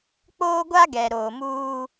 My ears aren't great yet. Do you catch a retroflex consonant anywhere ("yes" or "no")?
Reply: no